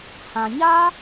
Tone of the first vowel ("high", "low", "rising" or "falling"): low